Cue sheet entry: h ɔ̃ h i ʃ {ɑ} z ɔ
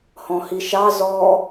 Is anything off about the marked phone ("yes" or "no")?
no